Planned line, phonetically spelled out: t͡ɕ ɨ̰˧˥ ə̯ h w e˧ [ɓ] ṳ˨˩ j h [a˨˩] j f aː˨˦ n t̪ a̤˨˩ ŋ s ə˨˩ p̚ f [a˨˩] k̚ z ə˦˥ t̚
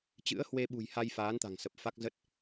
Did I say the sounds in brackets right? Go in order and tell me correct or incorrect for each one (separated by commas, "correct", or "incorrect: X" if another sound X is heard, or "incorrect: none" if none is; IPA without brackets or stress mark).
correct, incorrect: a˧, incorrect: a˦˥